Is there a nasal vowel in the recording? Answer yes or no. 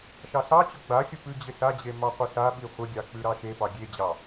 no